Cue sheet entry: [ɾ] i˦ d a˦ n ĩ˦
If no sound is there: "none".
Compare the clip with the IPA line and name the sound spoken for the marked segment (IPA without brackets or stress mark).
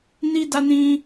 n